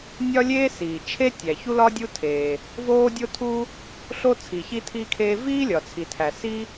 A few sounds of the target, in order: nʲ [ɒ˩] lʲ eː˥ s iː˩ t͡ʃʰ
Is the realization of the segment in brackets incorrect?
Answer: yes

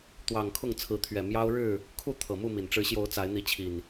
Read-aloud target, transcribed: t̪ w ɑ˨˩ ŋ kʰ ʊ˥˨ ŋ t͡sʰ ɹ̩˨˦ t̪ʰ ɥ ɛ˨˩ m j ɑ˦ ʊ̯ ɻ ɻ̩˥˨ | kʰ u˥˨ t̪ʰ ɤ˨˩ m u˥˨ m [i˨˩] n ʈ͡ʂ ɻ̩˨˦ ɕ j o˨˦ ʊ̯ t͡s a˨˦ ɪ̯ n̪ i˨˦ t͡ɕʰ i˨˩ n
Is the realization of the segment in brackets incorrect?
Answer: no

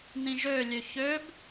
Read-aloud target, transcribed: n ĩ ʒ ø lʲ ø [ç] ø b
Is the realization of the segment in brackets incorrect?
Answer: no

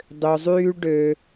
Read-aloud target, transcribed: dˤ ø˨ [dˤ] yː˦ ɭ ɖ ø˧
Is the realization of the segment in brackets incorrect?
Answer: yes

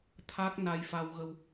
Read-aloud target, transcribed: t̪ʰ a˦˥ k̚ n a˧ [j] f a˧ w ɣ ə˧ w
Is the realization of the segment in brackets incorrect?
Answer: no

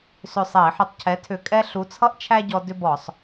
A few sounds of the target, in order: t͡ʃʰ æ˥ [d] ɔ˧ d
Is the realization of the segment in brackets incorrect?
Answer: yes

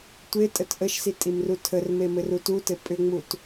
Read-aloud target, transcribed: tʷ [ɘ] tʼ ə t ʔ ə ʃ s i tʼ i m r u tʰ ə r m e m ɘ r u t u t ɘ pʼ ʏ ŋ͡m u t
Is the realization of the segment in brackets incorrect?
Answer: yes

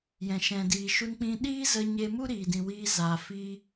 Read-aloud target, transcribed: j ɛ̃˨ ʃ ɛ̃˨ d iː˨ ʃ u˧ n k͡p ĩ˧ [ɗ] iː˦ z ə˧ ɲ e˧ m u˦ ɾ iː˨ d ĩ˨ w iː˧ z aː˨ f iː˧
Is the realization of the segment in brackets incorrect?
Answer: no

